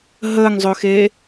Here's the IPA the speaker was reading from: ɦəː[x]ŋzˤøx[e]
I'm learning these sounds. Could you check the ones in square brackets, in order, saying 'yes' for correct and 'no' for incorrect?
no, no

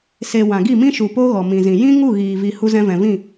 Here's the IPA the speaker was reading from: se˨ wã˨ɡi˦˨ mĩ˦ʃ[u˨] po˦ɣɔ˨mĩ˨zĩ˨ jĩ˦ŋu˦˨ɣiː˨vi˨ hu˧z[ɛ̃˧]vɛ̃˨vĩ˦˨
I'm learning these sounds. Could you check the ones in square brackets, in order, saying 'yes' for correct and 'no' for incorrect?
yes, yes

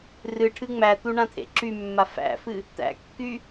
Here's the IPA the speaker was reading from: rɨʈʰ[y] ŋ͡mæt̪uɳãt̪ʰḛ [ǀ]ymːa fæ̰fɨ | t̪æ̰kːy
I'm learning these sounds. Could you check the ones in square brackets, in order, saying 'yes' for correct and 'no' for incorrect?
no, no

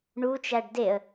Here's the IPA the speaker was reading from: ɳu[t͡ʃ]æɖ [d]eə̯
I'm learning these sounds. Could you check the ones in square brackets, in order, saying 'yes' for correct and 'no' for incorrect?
yes, yes

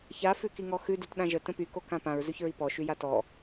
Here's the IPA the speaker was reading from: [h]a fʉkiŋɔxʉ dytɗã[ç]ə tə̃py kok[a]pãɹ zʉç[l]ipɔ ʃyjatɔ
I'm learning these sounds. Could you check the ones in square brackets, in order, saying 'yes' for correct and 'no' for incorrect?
no, no, no, no

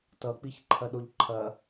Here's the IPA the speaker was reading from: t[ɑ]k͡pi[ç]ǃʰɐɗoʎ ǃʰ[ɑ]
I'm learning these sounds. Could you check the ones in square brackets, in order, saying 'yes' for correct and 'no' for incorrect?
no, yes, no

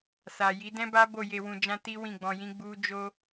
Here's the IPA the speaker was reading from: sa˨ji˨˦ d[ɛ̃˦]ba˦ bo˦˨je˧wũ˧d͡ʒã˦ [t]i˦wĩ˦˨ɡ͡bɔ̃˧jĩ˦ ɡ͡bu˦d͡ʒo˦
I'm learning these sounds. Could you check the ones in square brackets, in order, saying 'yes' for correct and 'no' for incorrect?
yes, yes

